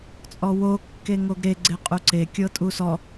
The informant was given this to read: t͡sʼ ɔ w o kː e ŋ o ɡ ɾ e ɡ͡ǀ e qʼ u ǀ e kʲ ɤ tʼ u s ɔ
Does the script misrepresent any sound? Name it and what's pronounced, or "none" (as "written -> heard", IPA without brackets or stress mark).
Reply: none